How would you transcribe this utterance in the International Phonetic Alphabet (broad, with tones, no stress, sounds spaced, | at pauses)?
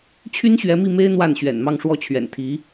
t͡ɕʰ y˥ n ɕ ɥ ɛ˧˥ m i˥˩ m e˥ ɪ̯ n̪ w a˥˩ n ɕ ɥ ɛ̰˨˩ n m ɑ˥˧ ŋ ʂ w ɔ˥˩ t͡ɕʰ ɥ ɛ̰˨˩ n t̪ʰ i˧˥